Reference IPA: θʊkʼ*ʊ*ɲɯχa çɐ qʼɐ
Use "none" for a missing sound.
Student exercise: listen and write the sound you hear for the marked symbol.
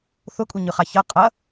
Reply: u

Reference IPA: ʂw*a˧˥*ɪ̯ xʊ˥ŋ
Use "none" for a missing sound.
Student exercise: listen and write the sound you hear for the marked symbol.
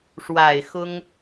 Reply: a˨˩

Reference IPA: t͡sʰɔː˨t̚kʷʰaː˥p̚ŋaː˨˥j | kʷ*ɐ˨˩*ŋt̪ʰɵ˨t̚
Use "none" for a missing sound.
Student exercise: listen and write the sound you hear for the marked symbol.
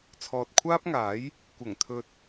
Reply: ɐ˨˩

